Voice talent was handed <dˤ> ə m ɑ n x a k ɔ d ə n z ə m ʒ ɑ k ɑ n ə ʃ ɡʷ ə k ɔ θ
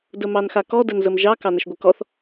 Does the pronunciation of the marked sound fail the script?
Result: yes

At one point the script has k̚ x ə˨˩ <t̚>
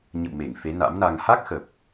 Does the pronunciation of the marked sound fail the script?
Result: yes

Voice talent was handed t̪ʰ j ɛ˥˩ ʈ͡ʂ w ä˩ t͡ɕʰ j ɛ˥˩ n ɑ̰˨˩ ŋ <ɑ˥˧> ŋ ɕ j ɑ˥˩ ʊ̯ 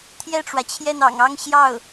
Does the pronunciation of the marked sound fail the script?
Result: no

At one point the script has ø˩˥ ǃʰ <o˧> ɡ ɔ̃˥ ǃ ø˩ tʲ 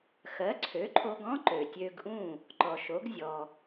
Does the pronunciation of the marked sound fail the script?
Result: no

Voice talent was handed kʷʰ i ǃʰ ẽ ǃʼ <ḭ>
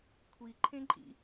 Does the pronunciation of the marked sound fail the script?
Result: no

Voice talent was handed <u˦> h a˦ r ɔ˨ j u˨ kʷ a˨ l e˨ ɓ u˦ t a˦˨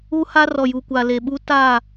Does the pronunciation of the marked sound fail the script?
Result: no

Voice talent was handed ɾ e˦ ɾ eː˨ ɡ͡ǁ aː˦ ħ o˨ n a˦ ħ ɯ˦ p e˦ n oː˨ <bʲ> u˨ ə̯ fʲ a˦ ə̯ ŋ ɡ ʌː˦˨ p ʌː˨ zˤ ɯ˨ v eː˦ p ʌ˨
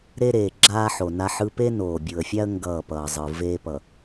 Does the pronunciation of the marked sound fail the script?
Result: no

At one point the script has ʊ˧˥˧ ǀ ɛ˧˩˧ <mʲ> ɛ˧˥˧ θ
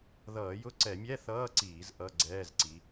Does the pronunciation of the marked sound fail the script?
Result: no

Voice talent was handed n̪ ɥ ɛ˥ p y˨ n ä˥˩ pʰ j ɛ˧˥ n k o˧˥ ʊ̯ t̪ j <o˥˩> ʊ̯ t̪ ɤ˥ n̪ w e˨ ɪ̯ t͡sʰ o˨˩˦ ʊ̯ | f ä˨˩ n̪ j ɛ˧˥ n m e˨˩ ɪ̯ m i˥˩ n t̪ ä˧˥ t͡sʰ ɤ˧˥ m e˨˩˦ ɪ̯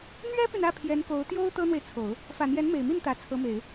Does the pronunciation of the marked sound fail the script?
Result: yes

